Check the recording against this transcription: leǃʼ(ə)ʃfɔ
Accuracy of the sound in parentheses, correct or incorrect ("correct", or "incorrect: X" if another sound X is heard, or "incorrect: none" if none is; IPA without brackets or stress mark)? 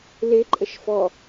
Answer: correct